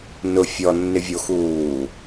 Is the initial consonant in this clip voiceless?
no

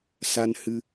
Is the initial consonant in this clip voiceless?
yes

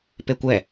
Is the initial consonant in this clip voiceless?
yes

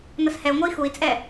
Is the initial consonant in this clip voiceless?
no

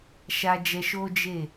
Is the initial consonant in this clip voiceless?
yes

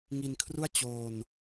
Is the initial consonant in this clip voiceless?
no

